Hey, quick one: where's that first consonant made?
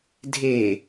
tongue tip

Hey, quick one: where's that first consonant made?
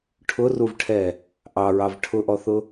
retroflex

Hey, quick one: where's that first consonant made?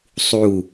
tongue tip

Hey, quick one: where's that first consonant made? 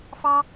lips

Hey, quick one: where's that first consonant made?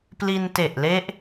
lips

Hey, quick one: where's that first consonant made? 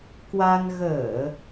velum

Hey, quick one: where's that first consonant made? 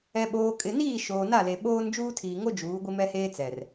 lips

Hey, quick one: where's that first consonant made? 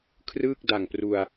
velum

